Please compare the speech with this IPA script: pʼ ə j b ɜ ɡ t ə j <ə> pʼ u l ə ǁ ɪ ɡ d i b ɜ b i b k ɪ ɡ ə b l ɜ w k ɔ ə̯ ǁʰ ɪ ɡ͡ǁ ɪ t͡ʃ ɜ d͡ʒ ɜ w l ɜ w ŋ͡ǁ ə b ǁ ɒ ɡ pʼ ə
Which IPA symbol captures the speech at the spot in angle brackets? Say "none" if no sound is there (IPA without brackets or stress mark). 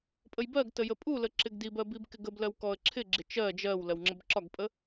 ə